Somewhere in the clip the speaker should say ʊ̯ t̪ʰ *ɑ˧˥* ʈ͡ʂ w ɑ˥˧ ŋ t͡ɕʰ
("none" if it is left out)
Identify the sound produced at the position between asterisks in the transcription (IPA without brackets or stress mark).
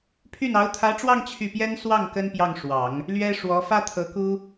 ä˧˥